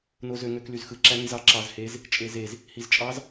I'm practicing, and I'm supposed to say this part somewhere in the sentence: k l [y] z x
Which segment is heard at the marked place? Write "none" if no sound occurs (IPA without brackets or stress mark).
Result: y